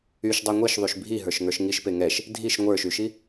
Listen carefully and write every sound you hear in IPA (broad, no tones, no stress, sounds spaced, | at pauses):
y ʃ dˤ e ŋʷ e ʃ ðˤ y ʃ bʱ i ɦ ə˞ ʃ ŋ ə˞ ʃ ŋ i ʃ p e ŋ ɛ ʃ | dʱ i ʃ ŋʷ ə˞ ʃ y ʃ i